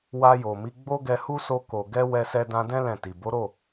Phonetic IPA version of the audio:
w a˧ j o˨ m i˨˦ ɡ͡b o˦ ɡ ɛ˧ h u˦ s o˧ k o˨ ɡ ɛ˧ w ɛ˧ s ɛ˧ d ã˧ d ɛ̃˦ l ɛ̃˦˨ t i˨ b o˨˦ ɾ o˦˨

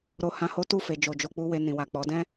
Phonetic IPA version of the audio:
ɾ o˧ h ã˧ h o˦ t u˦˨ f e˨ d͡ʒ o˨ d͡ʒ o˧ k͡p u˦ w e˧ n ĩ˨ w a˨ k͡p ɔ˨˦ d ɛ̃˦

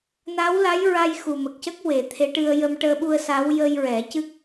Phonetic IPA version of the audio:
n a˧˥ w l a˧˥ j ɹ a˧ j x u˨˩ m ə˨˩ k̚ c ə˦˥ k̚ w e˨˩˦ t̪ʰ e˧˥ ʈ ɨ˧ ə̯ j ə˧ m ʈ əː˧ ɓ u˧ ə̯ s a˧˥ w j ə˧ j ɹ ɛ˨˩˦ c ɨ˦˥ k̚

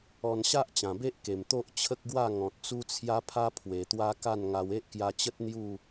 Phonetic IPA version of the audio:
ɔ˧ n ɕ a˦ ʔ t͡ɕ ã˨˩ b e˦ ʔ k e˨˩ m t̪ o˦ ʔ t͡ɕʰ ə˦ k̚ ɡ w a˥˧ ŋ ɔ̃˨ t̚ t͡s u˦ t͡sʰ j a˦ pʰ a˦ pʰ w e˨˩ t̪ w a˦ k a˥˧ n ŋ a˧ w e˦ ʔ k j a˧ t͡ɕ ə˦ t̚ n̪ j u˥˧

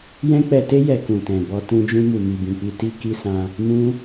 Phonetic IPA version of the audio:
j ɛ̃˦ k͡p ɛ˧ t e˦ j ɛ˧ k ũ˨ t ɛ̃˨ b ɔ˧ t ũ˧ d͡ʒ ũ˧ m u˨ m i˨ b ĩ˨ k͡p i˧ t i˧ k i˧ s ã˧ | m ũ˦

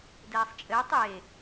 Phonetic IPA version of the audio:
d ɛː sˤ t͡ʃʼ ɘː tˤ e

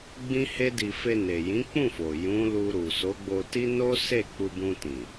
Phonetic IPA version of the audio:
ɡ͡b ĩ˦ h e˦ d i˧ f e˧ n e˨ j ĩ˨˦ k͡p ũ˦˨ f o˨ j ũ˨˦ l u˧ ɾ u˨ s o˨˦ ɡ͡b o˧ t i˦ n o˦ s e˦˨ k͡p u˧ b ũ˧ t ĩ˨

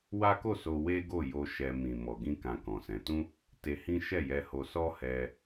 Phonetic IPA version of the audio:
w a˦ k o˦˨ s o˧ w e˦ ɡ o˦˨ j o˧ ʃ ɛ˧ m ĩ˨ m ɔ˨ ɡ ĩ˧ k ã˨ k ɔ̃˨ s ɛ̃˨˦ t ũ˦ | t e˧ h ĩ˦ ʃ ɛ˦˨ j ɛ˧ h o˧ s ɔ˦ h ɛ˧

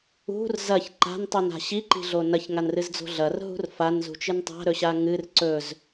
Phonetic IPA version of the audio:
ṳ r z ɐ ç ǃ a̤ n tˤ u n a̤ ɕ i ǃ i̤ ɮ o n ɐ ç ŋ a n r ɨ z d͡z o̤ ɮ ɐ r ɦ ṳ r f a n z ṳ t͡ʃ ɨ n tˤ a̤ ɾ ɵ ɕ a ŋ ɨ r ǀ ɵ z

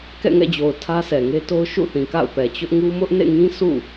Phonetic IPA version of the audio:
k ɛ̰˦˨ ŋ ɛ̰˦˨ d͡ʑ o˨ ʊ̯ tʰ ä˦ sʰ ɛ˨ ŋ e˦ t o˦ ʊ̯ ʃ ṵ˦˨ θ ĩ˨ k a̰˦˨ ʊ̯ p ɛ˨ t͡ɕ ʊ˦ ʔ ŋ u˦ m ʊ˦ ʔ n ḛ˦˨ ŋ ĩ˦ sʰ ṵ˦˨

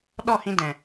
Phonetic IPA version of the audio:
ɗ ɔ˦˨ h ĩ˧ d ɛ̃˨

